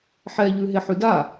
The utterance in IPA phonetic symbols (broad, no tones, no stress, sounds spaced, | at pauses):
ħ ɛ ʎ ʉ ɦ e ħ ʉ d a